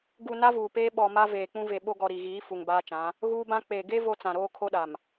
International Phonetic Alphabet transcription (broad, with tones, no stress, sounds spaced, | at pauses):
ɡ u˨ n a˦ v uː˨ p eː˦ ɓ ɔ˨ m a˦ v eː˨ k͡p ũ˦ v e˨ ɓ o˦ ɡ ɔ˨ ɾ i˨ ɣ iː˨˦ f u˨ ŋ b aː˦ t͡ʃ ã˨˦ | ɣ uː˦ b ã˦ k͡p e˨ ɡ e˦ v o˦ t͡s ã˨ ɾ oː˦ kʰ o˦ ɗ a˨ m